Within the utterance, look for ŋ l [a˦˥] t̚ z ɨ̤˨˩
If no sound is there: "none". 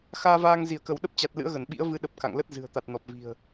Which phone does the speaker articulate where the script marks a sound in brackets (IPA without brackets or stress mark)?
ə˦˥